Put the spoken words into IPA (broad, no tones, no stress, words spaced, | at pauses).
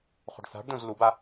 χo̤ɖθa̤ɖdõz luba